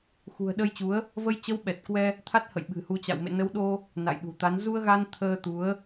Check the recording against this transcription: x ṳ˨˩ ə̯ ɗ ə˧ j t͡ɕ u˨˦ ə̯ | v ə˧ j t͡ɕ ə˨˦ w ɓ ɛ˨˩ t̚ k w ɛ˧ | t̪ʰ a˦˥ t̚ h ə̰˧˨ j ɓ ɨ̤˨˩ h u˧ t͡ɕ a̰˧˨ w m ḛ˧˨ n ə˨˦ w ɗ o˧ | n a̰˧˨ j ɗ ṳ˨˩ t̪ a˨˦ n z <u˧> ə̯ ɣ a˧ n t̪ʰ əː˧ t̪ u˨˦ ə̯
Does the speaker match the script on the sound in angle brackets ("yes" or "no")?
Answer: yes